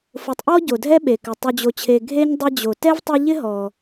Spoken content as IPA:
f ʊ˨ tˤ ʔ ɔ˥ ɟ o˩ dʱ ɛ˥ ɓ e˩ k ɪ˩ tˤ u˨ d͡ʑ o˨ t͡ɕʰ e˨ ɡʱ e˥ ɲ dˤ e˦ d͡ʑ o˩ t ɛ˥ v tˤ ɪ˦ ʎ ɪ˥ ɦ ɔ˩

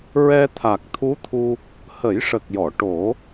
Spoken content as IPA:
ɹ ɛ˧ t̪ʰ a˨˩ k̚ t̪ʰ u˧˥ t̪ʰ u˧ | h ə˨˩˦ j ʂ ə˨˩ k̚ j ɔ˨˩˨ ʈ o˨˩˦

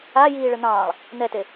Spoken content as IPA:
a j iː ɭ ə n̪ ɑ̃ː lˠ | n̪ ɛ t e

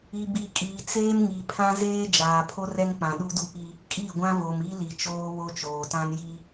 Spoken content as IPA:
i˨ b i˨ kʼ iː˨ t͡s eː˦ m ŋ i˨ pʰ ã˦ z eː˦ d͡ʒ aː˨ pʰ o˦ r ɛ˦ ŋ k͡p ã˨ ɗ u˦ d u˦ p i˦ | kʼ i˦˨ ɡʷ ã˦ v o˨ m i˦ l i˨ t͡ʃ oː˦ β o˦ t͡ʃ oː˨ t ã˦ n j i˦

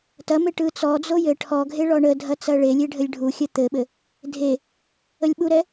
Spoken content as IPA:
t ɐ m e ʈ ɯ t͡s ɔ d͡z o j ɘ ʈʰ ɔ ɡʱ e ɭ ɔ ɳ ə dʱ ɐ t͡s ɐ ɭ e lʲ e ɖʱ ɘ lʲ ɖʱ u xʲ ɐ t̪ ɘ ɓ ɘ | dʱ e | ə lʲ ɓ u ɾ ɛ

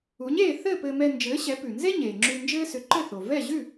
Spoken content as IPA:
u˩˥ ɲ eː˥˩ θ ɘ˥˩ p ɘː˧ m ɛ˧ n d͡ʒ ɘː˩˥ ɕ ɛ˩˥ p ʉ˩ n z e˥ ɲ eː˩ ŋ͡ǁ ʉ˧ n d͡ʒ ɘː˥ s ʏ˩˥ ǃ ɘ˥˩ θ o˩ v ɛ˥˩ ʑ ʉ˥˩

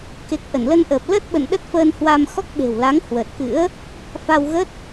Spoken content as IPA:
k e˨˩ k̚ ʔ ə˧˩ n l ə˧ n ʔ əː˨˩ p̚ l ə˦˥ t̚ ɓ ə̰˧˨ n ɗ ə˦˥ t̚ f əː˧ n h w aː˧ m x ɔ˦˥ k̚ ɓ e̤˨˩ w l a˨˦ ŋ h w ə˨˩ t̚ k ɨ̰˧˥ ə̯ | f a˧ w ɣ ə˦˥ t̚

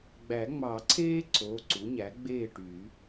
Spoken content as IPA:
ɡ͡b æ˨˩˦ ŋ͡m ɑ˨˩˦ ǀʰ eː˥ ǀ o˩˧˩ ǀ u˩˥ ɲ æ˩˥ ɡ͡b eː˥˨ ʈ y˨˩˦

